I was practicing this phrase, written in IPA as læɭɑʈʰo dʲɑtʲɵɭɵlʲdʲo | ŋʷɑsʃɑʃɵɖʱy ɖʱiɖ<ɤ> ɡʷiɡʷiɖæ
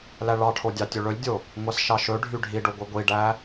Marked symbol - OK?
no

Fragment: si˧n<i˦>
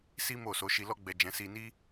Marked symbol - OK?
yes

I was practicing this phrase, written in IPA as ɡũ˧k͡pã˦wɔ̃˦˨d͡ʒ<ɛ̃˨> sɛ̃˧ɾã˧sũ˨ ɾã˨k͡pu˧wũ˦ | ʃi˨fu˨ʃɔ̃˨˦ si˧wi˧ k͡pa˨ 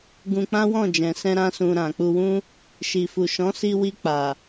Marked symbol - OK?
yes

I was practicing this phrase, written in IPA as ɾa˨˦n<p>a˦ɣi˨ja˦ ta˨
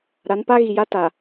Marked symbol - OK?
yes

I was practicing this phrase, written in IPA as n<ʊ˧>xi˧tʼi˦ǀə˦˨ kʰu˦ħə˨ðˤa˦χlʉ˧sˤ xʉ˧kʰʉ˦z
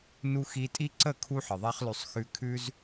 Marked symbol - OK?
no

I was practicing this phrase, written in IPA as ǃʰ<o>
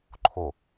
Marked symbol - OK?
yes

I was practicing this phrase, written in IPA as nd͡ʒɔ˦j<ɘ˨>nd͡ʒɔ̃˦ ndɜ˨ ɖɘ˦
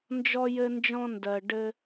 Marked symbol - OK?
no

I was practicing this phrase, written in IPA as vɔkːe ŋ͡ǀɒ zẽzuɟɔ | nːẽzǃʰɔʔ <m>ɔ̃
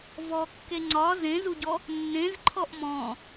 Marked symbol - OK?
yes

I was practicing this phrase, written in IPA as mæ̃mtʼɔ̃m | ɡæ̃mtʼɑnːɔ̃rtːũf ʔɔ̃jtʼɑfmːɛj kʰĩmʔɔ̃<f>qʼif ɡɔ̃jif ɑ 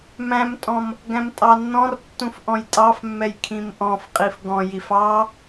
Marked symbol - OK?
yes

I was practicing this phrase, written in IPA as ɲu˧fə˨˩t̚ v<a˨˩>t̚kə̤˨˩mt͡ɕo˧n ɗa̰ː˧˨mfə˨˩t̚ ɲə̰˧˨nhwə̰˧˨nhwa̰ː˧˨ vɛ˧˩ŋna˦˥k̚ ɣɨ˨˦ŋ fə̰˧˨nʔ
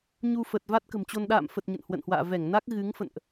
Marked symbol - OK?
no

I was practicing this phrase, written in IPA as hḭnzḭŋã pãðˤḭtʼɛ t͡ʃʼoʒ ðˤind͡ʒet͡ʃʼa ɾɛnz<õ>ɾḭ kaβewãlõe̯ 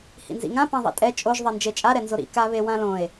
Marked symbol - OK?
no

